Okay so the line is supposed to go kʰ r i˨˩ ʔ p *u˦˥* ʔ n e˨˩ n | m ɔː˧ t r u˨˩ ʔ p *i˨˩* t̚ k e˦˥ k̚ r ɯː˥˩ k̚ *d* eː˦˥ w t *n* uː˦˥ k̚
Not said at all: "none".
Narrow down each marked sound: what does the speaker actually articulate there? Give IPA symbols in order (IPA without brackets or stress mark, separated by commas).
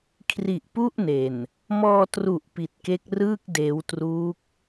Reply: u˥˩, i˨˩, d, r